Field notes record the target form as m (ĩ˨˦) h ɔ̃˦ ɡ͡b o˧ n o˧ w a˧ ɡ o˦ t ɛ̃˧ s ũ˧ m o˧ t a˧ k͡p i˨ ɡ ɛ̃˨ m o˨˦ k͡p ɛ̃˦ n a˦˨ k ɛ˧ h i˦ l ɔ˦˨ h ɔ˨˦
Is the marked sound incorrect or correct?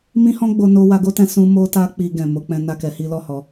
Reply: incorrect: ĩ˦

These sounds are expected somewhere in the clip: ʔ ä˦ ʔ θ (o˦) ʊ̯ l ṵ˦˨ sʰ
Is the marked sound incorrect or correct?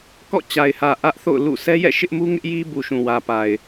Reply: incorrect: o̰˦˨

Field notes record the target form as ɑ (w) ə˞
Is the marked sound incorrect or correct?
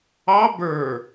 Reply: incorrect: b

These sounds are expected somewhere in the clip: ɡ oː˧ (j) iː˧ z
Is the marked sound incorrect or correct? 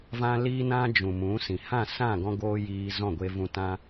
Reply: correct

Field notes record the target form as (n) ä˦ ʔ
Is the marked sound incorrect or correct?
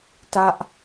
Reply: incorrect: t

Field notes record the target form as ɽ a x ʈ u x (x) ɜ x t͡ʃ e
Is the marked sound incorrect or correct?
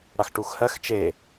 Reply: incorrect: h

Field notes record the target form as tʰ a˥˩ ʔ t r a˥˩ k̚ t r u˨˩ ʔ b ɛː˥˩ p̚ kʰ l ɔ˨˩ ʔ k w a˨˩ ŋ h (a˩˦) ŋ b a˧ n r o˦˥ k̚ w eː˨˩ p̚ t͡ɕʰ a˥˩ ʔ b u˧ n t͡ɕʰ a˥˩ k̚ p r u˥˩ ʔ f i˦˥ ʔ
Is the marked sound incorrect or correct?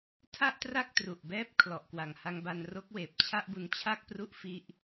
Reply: incorrect: a˧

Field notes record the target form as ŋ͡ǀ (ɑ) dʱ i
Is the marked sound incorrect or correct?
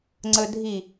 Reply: incorrect: ə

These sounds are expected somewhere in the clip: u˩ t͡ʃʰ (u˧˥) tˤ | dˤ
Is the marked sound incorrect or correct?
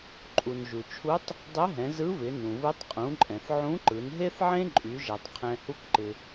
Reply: correct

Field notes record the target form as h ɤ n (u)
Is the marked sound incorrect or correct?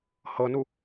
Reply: correct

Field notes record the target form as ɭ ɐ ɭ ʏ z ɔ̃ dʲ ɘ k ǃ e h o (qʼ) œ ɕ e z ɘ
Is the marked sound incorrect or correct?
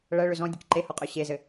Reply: correct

